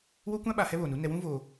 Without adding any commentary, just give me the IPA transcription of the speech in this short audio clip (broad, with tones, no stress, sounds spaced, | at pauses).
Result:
w o˦ kʷ ã˦ ɓ a˨ h ɛ˦ β oː˨ n u˦ n ɛ˨ w ũ˦ v oː˨